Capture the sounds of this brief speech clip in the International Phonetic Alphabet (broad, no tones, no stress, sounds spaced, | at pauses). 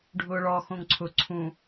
ɖʱ ʊː ɭ ɔ x õ ŋ ǀʰ ʊ ǀʰ ũ